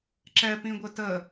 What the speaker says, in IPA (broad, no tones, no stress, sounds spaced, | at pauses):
ǁ ɛ p ĩ ɡʷ ɘ t ə